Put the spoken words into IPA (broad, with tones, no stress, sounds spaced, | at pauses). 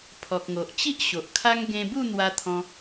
pʰ ɔ˨ k̚ ŋ o˨ ʔ t͡ɕ i˦ ʔ ɕ o˨ ʔ kʰ a˦ ŋ ɡ ẽ˧ b u˥˧ n̪ w a˧ t̪ʰ ɔ̃˧